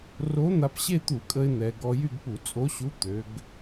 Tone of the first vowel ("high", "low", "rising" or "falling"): rising